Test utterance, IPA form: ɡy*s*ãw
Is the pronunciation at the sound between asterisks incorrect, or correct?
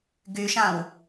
incorrect